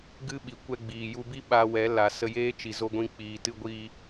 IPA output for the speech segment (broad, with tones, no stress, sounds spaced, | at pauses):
ɡ ɨ˦ ɓ i˨ kʷ ɛ˧ ɡ͡b iː˨ j u˧ b i˦ ɓ a˧ w ɛ˨˦ l a˨ s ə˧ j eː˦ t͡ʃ i˨ z o˧ ɡʷ ĩ˧ k͡p iː˨ t ɨ˧ ɡʷ iː˧